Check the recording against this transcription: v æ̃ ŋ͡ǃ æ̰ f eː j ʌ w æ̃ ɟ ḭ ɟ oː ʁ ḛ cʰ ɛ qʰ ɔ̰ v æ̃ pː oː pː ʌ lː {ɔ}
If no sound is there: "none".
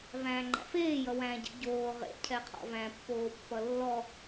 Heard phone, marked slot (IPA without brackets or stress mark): ɔ